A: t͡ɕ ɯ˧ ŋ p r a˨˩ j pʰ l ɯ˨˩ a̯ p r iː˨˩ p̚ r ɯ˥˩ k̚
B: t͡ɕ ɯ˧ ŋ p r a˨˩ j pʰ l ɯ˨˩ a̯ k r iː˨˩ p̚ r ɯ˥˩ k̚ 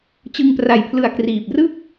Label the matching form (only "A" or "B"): B